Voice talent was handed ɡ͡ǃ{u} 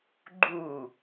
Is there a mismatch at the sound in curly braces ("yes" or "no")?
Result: no